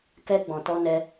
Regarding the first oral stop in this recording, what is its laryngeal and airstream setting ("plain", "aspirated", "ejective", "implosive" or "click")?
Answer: plain